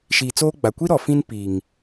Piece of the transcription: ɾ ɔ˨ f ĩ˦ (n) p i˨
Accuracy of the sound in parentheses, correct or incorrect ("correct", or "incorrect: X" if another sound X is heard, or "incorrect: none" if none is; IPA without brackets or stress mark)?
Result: correct